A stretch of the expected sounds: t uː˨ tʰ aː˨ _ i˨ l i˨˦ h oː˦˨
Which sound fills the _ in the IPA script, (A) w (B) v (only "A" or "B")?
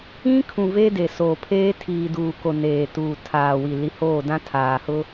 A